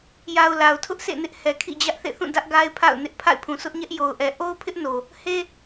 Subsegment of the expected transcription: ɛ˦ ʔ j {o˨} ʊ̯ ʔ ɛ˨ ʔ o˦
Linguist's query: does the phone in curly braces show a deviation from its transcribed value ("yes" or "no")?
no